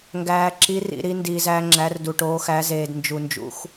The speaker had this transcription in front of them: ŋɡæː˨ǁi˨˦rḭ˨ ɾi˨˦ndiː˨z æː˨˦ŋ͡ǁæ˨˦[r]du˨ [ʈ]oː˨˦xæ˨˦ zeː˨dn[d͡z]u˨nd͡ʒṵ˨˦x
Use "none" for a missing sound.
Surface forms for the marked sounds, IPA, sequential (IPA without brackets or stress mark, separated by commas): r, ʈ, d͡ʒ